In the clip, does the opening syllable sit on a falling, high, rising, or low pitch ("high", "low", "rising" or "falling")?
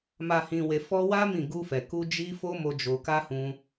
low